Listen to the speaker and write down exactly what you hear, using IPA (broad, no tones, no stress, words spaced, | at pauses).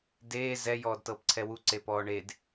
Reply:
deː zɛ jɔːdtɤːpǀʰɛwu ǀepɔːɳed